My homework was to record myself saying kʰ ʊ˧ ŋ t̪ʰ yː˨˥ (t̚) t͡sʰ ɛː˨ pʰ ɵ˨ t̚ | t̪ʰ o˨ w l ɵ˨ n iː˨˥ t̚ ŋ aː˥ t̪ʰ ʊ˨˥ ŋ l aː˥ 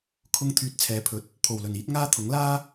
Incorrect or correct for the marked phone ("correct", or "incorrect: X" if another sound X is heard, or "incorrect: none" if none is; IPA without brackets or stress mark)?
correct